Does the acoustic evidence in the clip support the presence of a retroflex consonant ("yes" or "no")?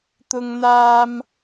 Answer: no